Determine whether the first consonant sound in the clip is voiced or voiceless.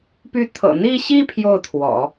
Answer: voiceless